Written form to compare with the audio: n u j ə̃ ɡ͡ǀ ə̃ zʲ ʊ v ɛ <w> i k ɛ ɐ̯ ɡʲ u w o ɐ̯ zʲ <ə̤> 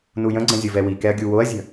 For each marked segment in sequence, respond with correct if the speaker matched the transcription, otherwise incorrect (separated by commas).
correct, correct